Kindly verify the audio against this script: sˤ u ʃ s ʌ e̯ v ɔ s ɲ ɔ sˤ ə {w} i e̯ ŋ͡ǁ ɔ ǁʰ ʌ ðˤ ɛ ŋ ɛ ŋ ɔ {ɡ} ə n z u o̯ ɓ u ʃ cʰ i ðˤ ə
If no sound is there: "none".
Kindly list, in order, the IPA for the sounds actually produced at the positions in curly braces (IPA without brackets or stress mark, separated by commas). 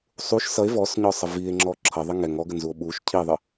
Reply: v, ɡ